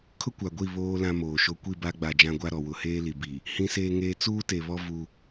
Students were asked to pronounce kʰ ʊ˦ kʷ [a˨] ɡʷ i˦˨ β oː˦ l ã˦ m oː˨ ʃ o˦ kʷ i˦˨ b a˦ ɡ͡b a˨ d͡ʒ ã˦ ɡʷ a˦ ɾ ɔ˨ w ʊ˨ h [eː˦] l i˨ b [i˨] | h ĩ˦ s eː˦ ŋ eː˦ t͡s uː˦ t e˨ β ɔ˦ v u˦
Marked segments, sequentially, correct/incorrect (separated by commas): correct, correct, correct